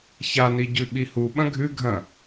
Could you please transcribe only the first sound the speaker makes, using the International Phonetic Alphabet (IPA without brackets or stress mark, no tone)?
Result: ç